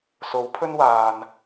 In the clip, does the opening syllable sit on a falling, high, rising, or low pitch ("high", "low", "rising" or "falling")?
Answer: rising